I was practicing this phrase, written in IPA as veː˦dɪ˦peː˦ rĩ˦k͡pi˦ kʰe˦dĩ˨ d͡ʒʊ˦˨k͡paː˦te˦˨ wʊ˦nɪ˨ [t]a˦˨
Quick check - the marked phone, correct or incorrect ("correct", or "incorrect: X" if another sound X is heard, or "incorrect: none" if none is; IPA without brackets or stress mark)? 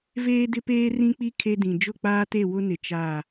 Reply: incorrect: t͡ʃ